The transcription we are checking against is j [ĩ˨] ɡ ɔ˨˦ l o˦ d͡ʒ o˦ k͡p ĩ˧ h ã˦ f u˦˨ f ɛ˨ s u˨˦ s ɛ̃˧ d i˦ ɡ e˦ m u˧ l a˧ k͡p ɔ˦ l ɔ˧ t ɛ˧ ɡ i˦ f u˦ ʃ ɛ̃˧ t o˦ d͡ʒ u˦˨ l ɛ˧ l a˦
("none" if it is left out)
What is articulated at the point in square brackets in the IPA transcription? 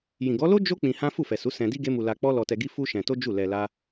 ĩ˨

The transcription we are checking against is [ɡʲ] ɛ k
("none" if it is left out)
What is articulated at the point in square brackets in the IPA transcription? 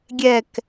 ɡʲ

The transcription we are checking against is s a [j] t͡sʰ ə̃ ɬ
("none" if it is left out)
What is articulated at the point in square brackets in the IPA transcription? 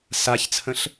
ç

